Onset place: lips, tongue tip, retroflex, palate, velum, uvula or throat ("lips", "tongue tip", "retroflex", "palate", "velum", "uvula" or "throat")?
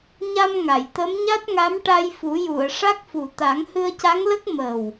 palate